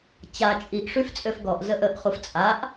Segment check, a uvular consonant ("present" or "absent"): present